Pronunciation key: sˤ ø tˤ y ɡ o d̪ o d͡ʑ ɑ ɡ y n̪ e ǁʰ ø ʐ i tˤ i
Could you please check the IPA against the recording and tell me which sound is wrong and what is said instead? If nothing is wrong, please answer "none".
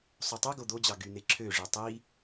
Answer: none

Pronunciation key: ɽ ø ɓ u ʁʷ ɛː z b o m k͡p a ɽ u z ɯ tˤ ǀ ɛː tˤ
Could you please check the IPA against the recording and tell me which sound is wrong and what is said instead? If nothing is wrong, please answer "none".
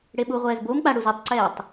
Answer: ø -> e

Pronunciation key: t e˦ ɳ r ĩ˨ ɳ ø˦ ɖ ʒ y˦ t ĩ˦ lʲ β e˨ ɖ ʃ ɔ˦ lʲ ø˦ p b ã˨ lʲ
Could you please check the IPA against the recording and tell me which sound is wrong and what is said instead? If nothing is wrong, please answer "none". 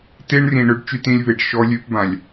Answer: ʒ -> t͡ʃ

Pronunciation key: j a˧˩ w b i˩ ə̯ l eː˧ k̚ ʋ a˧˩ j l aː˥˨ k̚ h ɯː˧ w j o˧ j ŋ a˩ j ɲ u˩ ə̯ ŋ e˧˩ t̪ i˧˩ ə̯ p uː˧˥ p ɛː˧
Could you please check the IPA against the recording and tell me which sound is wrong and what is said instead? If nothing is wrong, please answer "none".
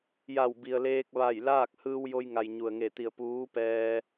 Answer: none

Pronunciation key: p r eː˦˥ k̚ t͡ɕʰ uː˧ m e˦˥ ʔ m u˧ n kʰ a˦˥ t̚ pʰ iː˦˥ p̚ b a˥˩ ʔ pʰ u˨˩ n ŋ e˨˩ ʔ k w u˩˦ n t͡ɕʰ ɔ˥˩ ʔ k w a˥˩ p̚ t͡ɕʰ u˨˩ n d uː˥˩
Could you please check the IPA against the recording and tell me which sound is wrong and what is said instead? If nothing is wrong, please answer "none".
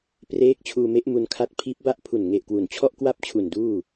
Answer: none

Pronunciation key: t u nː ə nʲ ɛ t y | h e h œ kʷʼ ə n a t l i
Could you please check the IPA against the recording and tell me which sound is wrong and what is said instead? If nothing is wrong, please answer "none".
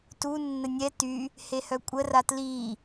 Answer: n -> r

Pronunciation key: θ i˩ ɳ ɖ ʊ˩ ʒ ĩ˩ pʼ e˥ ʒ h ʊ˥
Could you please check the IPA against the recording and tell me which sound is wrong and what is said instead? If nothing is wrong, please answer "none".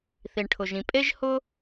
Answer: ɖ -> ʈʰ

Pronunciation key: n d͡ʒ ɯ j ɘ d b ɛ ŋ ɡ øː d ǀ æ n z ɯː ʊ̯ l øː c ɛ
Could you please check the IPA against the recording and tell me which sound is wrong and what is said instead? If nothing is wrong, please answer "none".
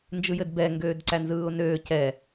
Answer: l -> n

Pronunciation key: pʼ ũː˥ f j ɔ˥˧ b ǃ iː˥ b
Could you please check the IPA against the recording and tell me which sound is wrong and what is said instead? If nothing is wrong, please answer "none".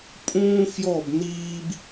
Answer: ǃ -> n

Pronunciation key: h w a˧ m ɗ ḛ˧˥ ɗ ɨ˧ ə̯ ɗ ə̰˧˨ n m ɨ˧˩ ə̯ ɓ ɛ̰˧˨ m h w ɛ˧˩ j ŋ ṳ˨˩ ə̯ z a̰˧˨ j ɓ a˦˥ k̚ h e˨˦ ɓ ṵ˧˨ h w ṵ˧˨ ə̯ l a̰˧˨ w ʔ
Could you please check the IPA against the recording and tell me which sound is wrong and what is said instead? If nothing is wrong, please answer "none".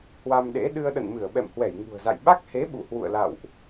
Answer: none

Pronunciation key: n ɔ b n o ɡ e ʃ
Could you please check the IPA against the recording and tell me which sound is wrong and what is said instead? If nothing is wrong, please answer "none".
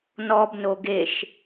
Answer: none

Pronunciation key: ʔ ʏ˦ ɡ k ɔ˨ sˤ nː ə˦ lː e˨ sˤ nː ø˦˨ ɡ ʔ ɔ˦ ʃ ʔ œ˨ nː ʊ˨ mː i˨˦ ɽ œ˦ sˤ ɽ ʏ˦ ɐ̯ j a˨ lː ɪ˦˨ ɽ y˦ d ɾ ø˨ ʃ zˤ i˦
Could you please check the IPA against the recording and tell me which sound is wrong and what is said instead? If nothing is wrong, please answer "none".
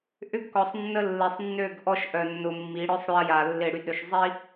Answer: none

